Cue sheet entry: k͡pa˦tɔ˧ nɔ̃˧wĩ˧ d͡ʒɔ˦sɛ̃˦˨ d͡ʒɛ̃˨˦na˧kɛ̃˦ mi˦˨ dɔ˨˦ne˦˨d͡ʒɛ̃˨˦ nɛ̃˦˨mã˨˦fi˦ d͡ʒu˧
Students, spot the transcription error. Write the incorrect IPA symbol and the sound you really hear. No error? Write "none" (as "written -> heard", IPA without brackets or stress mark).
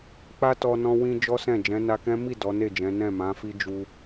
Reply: none